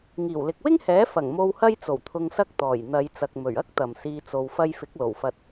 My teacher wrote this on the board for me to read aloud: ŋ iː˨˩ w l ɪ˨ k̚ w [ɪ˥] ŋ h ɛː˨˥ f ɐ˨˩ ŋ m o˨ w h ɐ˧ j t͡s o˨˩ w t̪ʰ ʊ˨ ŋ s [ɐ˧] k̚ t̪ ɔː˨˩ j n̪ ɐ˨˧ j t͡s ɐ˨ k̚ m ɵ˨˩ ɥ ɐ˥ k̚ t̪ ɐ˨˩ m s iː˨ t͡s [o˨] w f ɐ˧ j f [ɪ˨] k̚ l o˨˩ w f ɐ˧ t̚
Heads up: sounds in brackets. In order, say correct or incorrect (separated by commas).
correct, correct, correct, incorrect